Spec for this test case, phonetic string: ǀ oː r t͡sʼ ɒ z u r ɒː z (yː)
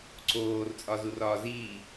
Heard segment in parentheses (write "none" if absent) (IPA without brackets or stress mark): iː